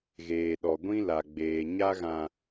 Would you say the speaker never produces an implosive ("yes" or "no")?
no